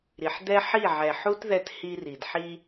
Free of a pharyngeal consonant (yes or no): no